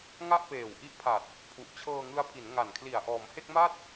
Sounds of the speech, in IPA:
ŋa˥˩ʔpeː˨˩wʔi˦˥ʔpʰa˨˩t̚ | pʰu˨˩ʔt͡ɕʰɤː˧ŋɯ˦˥a̯ pʰi˩˦nŋa˨˩nkʰli˨˩a̯ ʔɔː˩˦mhe˥˩k̚ma˥˩t̚

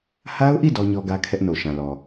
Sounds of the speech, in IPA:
ha˦ʊ̯ʔi˦˨ dɔ˦ɲɔ˦ɡä˦ kʰɛ˦ʔno˨ʃã˨lɔ˨

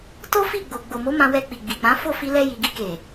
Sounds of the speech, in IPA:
to˦fi˦˨ɡ͡bo˨ ɡ͡bo˨mo˨˦ mã˧wɛ˧ k͡pi˨ɡ͡bi˨k͡pã˨˦ fo˦˨fi˧lɛ˧ ji˨ɡi˧ke˨

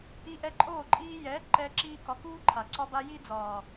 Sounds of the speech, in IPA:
i˧ʔɛ˧ǃʼoː˦˨ ǃʼiː˧jɛː˨˦ ǃɛː˧ǁiː˧kɒ˨˦ kuː˦ǃʰa˨ ǀɒ˧ba˧ji˦ d͡zɒː˨

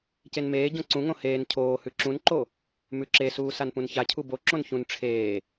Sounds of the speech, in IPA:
cenmeːɟõ ǀũŋõ heːn cʰoːhʉ ǁũnǃo | mʉǁesuː sanpũnçacʰu boǁõn çũn ʈ͡ʂʰeː

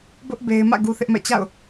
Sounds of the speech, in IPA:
bʊ˦ʔ be˦ɪ̯ mä̰˦˨ ɡu˦θɪ˦ʔmɛ̰˦˨ t͡ɕa̰˦˨ʊ̯

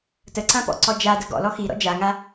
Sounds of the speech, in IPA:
təǀãpɔ̰ǀɔ d͡ʒadə ɡɔ̰lɔ xiɾɔ̰ d͡ʒaŋa

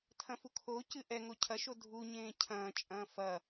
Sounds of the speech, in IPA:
tʰɐ̃fukʰocɨ ʔɛŋo cʰɐʃo dʱuɲẽː cʰɐ̃ːt͡ʃʼɐ̃ː fɐ

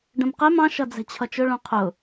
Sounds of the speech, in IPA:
ɖə̃mqɛm ɑ̃ ʃʌd͡zɛ̤t͡ɕʰʌt͡ʃʊ ɭũqʰʊ

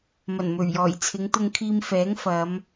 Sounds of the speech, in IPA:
mɐ˨˩nmɵ˨˩ɥjɔː˨˩j t͡sʰɪ˨˧ŋt̪ʊ˧ŋ kʰiː˧mfɛː˨˥ŋfɐ˨˧m

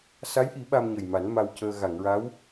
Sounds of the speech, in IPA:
sa˧˥jʔi˨˩˦ ɓa˧mɲə˨˩jma˨˩˦n ma˧wcəː˧ ɣa˨˩˨ŋɹa˧˥w

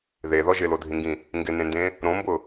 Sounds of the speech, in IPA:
ðeðɔ ʒɪlodʱĩŋɡĩ | ŋɡɪnẽndẽ | ɾõmbʊ

